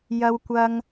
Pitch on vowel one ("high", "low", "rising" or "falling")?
low